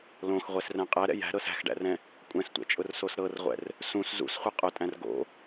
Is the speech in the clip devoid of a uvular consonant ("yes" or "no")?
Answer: no